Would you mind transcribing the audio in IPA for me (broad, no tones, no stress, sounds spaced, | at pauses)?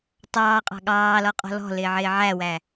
tˤ ɑː qʼ ɑ̤ ɠ ɑː l ɔ qʼ ɔ̤ l ɔ̤ l ɪː ʕ ɪː ʕ æ w æ